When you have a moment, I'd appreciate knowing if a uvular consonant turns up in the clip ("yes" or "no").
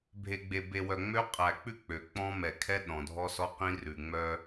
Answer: yes